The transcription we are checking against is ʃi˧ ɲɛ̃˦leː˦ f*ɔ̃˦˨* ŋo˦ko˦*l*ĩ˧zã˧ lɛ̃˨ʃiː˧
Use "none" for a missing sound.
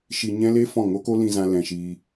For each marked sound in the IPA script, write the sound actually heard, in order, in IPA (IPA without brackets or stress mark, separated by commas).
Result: ɔ̃˦˨, l